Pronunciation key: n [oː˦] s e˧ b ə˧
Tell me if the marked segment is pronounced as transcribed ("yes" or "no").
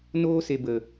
yes